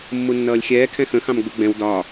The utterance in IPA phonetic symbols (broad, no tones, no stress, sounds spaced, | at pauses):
mː u nː ʌː lʲ xʲ ɛː kʰ ɛ̃ x ə̃ x ɑ̃ m ɡ͡b u ɡ͡b ɛ̃ w d ɒː